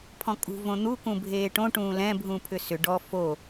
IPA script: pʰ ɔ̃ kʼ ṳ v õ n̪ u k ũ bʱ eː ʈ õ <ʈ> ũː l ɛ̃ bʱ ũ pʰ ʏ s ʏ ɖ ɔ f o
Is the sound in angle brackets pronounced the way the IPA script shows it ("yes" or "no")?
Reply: yes